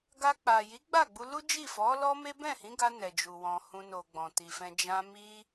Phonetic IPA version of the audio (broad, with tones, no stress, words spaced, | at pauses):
ɡa˧k͡pa˨ ji˨˦ɡ͡ba˦˨ɡ͡bu˧ lu˦d͡ʒi˦˨fɔ˨˦ lɔ˦me˦ bɛ̃˦˨hĩ˨˦ɡa˧ nɛ˨d͡ʒu˨ wɔ̃˨hũ˧no˨ ɡ͡bɔ̃˨ti˨fɛ̃˧ d͡ʒã˧mi˦